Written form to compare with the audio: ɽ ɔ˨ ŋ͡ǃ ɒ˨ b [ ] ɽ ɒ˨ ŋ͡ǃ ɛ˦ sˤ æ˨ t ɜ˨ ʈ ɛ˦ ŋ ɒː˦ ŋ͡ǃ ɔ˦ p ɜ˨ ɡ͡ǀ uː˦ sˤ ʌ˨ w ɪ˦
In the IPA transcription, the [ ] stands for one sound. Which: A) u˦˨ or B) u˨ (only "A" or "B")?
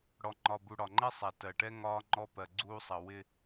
B